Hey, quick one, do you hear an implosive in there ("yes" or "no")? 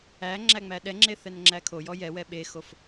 yes